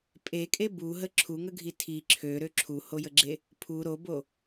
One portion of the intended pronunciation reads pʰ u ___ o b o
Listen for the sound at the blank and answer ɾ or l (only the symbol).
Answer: ɾ